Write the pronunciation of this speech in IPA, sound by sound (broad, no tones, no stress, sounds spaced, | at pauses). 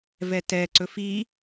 v ɛ t ɛ ǀ ɵ f i